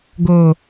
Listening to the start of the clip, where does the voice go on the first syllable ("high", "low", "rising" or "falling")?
low